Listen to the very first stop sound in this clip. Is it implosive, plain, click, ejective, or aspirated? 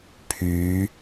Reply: aspirated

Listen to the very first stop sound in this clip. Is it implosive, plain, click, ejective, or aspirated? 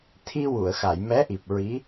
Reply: aspirated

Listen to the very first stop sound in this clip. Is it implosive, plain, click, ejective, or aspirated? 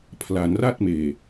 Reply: aspirated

